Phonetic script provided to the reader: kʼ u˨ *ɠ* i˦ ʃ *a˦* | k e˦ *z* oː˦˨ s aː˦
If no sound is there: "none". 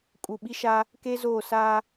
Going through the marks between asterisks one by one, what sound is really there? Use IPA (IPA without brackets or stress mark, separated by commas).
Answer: ɓ, a˦, z